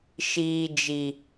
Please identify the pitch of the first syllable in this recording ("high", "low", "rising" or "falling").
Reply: high